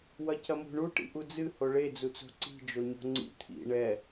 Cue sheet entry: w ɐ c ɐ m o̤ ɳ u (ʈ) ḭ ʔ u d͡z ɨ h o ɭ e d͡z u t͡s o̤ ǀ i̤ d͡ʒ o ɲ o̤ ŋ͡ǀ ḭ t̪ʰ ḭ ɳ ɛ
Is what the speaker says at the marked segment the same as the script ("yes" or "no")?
yes